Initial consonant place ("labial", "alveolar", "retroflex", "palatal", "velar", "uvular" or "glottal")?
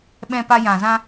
labial